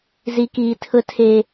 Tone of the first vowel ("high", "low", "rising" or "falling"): high